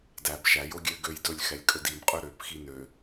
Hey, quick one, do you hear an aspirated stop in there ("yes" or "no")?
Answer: no